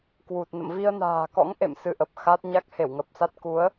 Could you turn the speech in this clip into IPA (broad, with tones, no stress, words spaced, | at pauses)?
kwu˨˩t̚ nə̰˧˨mvi˧ə̯na̤ː˨˩kɔ̰˧˥ŋ ʔḛ˧˨m sɨ˧ʔə˨˩p̚xa˦˥t̚ ɲa˦˥k̚he˧˩wŋə˨˩p̚sa˦˥t̚ ku˨˦ə̯